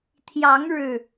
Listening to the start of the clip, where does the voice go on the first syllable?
rising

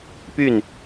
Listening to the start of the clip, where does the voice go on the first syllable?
falling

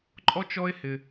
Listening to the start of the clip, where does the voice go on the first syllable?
high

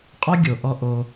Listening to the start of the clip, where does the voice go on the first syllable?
high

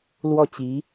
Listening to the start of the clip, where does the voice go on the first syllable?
falling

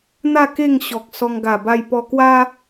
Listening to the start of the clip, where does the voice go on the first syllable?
falling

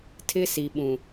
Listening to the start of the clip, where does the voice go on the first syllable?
high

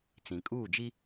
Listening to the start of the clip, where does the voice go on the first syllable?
low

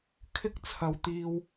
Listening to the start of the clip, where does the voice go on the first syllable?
high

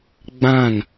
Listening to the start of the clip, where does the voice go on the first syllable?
falling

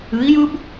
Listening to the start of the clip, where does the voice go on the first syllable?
rising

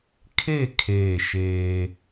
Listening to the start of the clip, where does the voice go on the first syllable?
falling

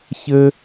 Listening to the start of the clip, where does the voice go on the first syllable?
high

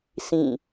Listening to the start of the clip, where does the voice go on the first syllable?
falling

